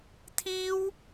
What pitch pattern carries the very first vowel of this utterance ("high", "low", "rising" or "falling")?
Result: high